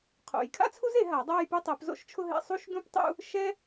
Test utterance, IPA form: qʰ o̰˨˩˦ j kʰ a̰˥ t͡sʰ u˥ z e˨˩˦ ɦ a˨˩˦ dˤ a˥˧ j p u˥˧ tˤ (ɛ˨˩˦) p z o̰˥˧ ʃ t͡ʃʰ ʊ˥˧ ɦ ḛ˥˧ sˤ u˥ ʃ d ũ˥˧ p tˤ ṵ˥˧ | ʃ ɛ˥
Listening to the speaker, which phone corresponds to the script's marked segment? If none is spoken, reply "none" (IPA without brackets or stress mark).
ɛ˨˩˦